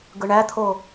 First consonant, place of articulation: velar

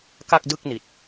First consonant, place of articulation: velar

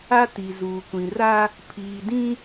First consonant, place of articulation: alveolar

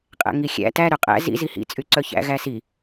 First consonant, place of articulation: uvular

